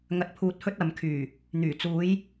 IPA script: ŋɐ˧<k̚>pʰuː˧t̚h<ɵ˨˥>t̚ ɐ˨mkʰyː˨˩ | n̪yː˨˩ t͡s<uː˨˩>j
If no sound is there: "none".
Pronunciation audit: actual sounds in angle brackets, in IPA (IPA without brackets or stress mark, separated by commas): t̚, ɵ˥, uː˨˧